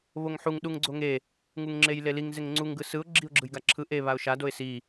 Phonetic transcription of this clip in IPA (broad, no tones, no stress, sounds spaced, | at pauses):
β o ŋ ħ u ŋ ɗ u ŋ ɡ͡ǀ o ŋ e | ŋ u ŋ ŋ͡ǁ e j l e l i ŋ z e ŋ ŋ͡ǀ u ŋ ɡ ɯ s ɯ ʊ̯ ɡ͡ǁ i ʊ̯ ɡ͡ǁ ɯ j ɡ a ǁʰ ɯ ʔ e β a ʊ̯ ʃ a d o ɪ̯ s i